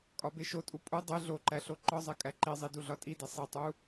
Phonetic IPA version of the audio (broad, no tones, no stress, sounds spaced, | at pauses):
kʼ ɒ b e ʃ o tʼ u pʼ u dˤ e ɮ o ǃ æ ɬ o ǃ ɒ zˤ e kʼ æ ǃ i zˤ i d u ɮ ɒ tʼ i d e sˤ i tˤ u